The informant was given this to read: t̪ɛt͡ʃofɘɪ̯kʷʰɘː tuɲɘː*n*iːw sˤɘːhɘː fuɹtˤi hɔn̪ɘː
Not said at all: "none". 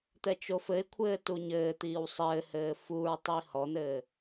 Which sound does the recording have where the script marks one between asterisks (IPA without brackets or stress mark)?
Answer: t̪